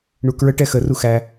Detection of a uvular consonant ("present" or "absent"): absent